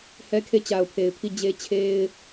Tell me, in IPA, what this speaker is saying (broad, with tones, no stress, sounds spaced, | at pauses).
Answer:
h ɛ˦ kʰ e˦˨ t͡ɕ a˨ ʊ̯ pʰ e˨ ɪ̯ pʰ i˦˨ d͡ʑ e˦ t͡ɕʰ e˦ ɪ̯